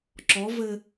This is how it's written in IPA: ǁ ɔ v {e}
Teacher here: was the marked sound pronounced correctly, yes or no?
no